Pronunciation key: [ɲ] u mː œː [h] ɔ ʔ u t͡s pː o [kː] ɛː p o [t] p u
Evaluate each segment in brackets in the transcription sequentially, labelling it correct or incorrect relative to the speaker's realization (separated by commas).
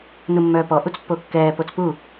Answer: incorrect, incorrect, correct, incorrect